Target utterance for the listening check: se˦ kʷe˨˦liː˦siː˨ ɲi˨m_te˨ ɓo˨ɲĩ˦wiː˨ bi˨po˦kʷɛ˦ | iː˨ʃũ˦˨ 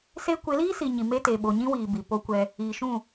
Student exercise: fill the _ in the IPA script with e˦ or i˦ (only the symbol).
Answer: e˦